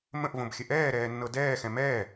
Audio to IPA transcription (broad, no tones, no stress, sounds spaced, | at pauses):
m ə̃ ʔ v õ b xʲ ə ʔ ɛː ɾ ɛː nː ɤ d ɛː x ɛ̃ m ɛː